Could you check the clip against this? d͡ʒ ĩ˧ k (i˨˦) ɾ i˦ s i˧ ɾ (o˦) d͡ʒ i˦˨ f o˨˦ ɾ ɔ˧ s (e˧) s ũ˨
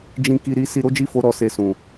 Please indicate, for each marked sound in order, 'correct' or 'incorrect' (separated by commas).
incorrect, correct, correct